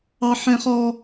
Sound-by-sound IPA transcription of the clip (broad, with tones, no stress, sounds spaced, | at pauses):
ɑ˦ ħ ɛ̃˦ χ ɔ˦